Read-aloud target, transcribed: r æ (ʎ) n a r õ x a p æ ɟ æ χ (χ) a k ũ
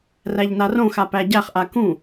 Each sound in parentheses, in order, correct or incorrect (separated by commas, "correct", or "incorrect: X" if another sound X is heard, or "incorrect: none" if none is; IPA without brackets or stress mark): correct, incorrect: ʔ